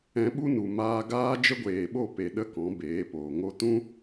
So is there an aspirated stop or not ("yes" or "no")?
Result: no